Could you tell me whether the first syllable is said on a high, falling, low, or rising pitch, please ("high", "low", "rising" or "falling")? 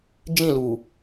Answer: falling